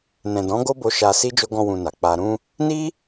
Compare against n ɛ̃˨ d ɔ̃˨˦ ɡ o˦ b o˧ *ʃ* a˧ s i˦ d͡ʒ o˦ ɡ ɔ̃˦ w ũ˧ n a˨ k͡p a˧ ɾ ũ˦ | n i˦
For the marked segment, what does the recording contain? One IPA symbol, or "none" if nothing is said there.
ʃ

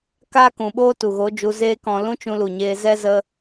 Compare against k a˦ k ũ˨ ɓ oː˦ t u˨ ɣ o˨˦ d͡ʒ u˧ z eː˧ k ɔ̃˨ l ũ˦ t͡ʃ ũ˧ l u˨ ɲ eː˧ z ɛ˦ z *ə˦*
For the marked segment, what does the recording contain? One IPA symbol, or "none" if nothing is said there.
ə˦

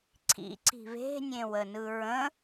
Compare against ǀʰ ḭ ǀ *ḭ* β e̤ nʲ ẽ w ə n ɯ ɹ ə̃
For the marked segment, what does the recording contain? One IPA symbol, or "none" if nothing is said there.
i̤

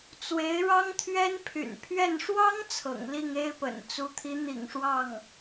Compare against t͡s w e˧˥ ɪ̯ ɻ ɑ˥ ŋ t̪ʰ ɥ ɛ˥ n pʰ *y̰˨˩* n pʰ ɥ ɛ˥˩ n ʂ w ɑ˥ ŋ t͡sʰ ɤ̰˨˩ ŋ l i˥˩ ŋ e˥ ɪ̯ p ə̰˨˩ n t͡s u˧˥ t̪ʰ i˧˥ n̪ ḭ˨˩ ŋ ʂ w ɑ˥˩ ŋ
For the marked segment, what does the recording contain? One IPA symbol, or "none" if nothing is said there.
y̰˨˩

